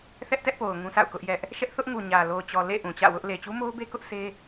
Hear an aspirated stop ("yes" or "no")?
no